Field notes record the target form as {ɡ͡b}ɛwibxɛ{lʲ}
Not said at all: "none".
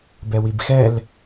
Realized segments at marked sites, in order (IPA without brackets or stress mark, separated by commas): b, l